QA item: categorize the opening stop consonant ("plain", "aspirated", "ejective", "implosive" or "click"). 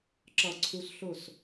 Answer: click